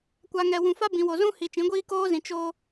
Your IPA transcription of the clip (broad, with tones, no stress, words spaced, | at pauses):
kʷa˨ŋɛ˨ wũ˨fa˦ bĩ˨wo˨zũ˦ hi˨ t͡ʃĩ˨˦ɡʷiː˦ koː˦zĩ˨ t͡ʃo˦